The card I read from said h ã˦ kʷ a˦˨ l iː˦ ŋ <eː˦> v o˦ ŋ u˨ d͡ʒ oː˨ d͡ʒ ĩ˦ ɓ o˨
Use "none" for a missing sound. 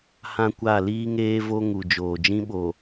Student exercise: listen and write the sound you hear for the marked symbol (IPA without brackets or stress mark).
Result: eː˦